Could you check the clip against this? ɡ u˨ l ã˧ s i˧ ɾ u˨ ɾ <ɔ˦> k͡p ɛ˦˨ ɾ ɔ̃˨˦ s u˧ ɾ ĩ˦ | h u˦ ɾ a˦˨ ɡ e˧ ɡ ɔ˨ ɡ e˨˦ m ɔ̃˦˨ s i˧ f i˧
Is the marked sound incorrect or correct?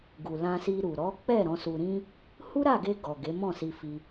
incorrect